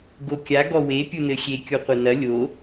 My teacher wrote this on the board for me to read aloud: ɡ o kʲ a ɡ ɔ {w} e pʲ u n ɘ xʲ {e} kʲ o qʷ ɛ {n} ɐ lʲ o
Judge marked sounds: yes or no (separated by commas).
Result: yes, yes, yes